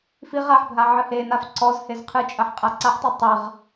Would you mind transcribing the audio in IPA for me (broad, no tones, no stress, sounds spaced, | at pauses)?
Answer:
f i ʁ a ħ bʱ a ʕ ɨ h e n a f ǀ ɔ z h e z qʰ ɨ t͡ʃʼ ɐ ħ qʼ a ǀ a ħ tˤ ɛ tˤ ɐ ʁ